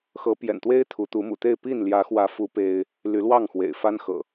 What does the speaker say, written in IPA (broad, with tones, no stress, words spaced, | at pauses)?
xɤ˨˦ pjɛ̰˨˩nt̪we˦ɪ̯ t̪ʰu˨˦t̪u˨˦mṵ˨˩t̪e˥˨ɪ̯ pi˥˨n ljä˨˦xwä˨˦fu˨˦ pe˦ɪ̯ | ly˨˦lwɑ˥˨ŋxwḛ˨˩ɪ̯ fa˦nxɤ̰˨˩